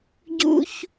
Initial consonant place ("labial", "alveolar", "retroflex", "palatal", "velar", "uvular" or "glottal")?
palatal